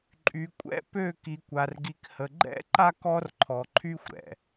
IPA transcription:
ǃʼy˨kʷʼɛ̰˦ pø˦˨ ki˨kʷa˨rɡi˨khə˨ ɡ͡ǃɛ̰˦ǃa˦k ɔ˦rǃʰɔ˨ǃʰy˦xʷ ɾɛ̰˨

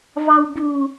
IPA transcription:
vɑwbu

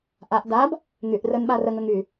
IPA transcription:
ʔaʔ dab | ŋyʔ rənɓa rəŋəŋ y

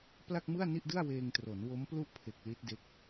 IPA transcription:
pla˥˩k̚mɯ˥˩a̯ni˥˩ʔdɯ˥˩a̯ weː˧ŋtro˩˦n wo˦˥mplu˥˩ʔpʰe˨˩k̚ li˦˥t̚de˦˥k̚

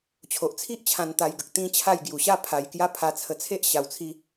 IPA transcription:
t͡ɕʰo˨ʔt͡sʰi˦ʔt͡ɕʰã˧n t̪a˧jɡə˨k̚ t̪ĩ˦ t͡ɕʰa˥˧jɡju˧ ɕa˥˧pʰa˧jkja˦ pʰa˧t͡sʰə˧t͡sʰe˦ʔ ɕa˧wt͡sʰi˦

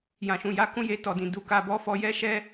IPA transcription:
jã˨ʃũ˨ja˨˦ kũ˦je˧tɔ˨dĩ˨ du˨ ka˨bɔ˧ fɔ˧jɛ˦ ʃɛ˦

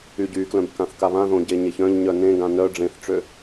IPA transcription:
yɟyklœ̃b kãθkaβãðõ ɟeɲeçœ̃ʎɲœ nẽɡã nœ ɖ͡ʐẽθʈ͡ʂø

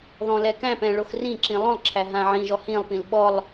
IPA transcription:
ðɔ̃lɛkæ̃pɛ̃ ɭoxrĩǁĩ lˠõlˠǁʰæ ɦãʕĩʒɔ hĩlˠpĩl ɓɔlˠ

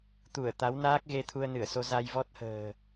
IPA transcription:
t̪u˧˩ə̯t̪a˨˦wnaː˦˥k̚ɣe˧ t̪ʰu˧ə̯nɨ˧˩ə̯so˧ za˧jvɔ˦˥t̚hə̤ː˨˩

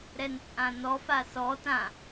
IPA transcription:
ɾɛnt͡sʼãnɔfa sɔ tã

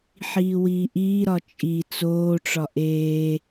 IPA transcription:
ħiːwiːʔiːɾɒ t͡ʃʼi t͡soːʈ͡ʂɒ ʔeː

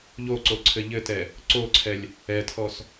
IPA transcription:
ʎoǀoǀʰɘ ʎɘtɛ | ǀoǀʰɛlʲ | ɛtʰɔs

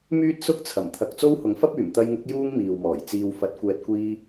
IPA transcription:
myː˥t̚sʊ˥k̚t͡sʰɐ˨˩m t̪ʰɐ˨k̚ t͡so˥whʊ˨˥ŋfɐ˥p̚yː˨˩m t̪ɐ˧jŋʊ˨˥k̚ juː˥ŋmiː˨wmɔː˨˩j t͡siː˨wfɐ˨˥t̚ kʷɛː˨t̚kʷiː˧

